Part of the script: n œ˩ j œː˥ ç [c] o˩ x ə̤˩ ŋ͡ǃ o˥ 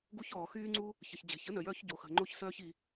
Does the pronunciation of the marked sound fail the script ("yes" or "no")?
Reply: yes